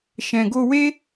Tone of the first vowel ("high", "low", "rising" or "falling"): low